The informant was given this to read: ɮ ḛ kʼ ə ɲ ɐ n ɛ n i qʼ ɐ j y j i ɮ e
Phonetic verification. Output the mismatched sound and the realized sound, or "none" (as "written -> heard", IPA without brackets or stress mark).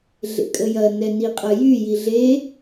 ɲ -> j